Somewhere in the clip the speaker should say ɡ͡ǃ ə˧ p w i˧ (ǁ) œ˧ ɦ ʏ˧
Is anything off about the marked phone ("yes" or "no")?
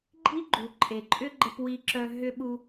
no